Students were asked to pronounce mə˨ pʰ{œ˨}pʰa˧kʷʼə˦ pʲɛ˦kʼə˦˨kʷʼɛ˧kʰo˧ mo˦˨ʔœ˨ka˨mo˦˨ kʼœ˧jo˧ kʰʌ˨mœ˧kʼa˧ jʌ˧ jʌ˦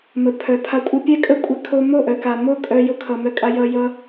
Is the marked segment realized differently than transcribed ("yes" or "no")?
no